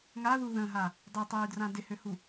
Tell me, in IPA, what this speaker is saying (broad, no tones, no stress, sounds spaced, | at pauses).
ŋ a ð u ð ə̃ ɦ a | dˤ ø tˤ yː d r ã d ɪ h ø h u